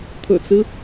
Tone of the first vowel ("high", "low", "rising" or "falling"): low